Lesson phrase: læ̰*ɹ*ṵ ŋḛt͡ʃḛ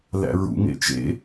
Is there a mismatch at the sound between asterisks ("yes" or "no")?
no